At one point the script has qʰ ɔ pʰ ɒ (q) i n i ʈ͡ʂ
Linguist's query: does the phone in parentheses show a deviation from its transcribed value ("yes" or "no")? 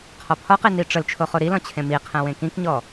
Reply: no